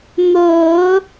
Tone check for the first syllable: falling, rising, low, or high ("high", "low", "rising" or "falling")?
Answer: low